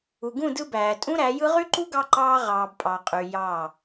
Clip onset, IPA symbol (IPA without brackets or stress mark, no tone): u